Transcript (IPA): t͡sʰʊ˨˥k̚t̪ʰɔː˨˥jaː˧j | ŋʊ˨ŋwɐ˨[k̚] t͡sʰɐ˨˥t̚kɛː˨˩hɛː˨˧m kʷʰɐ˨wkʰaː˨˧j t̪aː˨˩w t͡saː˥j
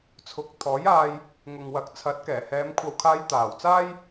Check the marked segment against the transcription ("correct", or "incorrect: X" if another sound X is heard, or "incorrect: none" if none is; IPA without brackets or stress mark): correct